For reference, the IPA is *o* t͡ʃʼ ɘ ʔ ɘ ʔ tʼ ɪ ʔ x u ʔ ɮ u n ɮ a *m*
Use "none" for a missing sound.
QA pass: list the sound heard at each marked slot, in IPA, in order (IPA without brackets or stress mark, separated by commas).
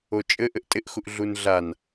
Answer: o, n